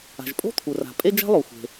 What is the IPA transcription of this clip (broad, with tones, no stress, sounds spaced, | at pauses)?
a̤˩ ʒ pʼ o̤˥ t̪ʰ u˩ r a̤˩ pʼ e˥ d͡ʒ a̤˥ lˠ o˩ xʷ e̤˩